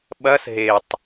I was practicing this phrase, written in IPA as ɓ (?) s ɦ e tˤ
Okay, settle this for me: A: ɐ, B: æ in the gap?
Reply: A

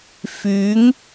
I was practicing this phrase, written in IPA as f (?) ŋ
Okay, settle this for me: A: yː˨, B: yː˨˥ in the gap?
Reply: B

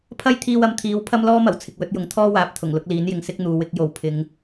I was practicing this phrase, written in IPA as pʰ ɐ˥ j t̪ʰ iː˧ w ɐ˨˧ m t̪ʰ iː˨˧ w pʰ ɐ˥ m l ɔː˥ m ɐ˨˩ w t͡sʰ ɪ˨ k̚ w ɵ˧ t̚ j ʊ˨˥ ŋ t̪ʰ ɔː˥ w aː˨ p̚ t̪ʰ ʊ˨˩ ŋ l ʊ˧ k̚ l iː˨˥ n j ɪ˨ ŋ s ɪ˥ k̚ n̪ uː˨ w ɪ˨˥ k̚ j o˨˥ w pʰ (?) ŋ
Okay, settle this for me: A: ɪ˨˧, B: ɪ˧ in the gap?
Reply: A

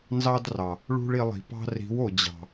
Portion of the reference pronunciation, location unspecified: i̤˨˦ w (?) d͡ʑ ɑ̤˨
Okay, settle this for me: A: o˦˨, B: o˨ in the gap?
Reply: B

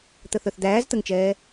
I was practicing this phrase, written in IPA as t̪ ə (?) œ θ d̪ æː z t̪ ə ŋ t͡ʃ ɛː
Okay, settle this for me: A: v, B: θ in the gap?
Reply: B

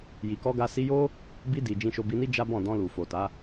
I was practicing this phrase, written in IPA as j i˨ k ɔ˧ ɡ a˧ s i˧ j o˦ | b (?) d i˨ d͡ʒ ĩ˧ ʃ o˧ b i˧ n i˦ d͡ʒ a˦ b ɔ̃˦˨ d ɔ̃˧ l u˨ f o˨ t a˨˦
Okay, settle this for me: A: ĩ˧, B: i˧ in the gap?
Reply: B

